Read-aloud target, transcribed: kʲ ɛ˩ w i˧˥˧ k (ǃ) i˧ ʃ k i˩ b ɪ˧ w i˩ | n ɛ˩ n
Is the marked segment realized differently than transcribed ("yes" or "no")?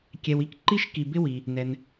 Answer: no